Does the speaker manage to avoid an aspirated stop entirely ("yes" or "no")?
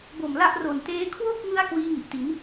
no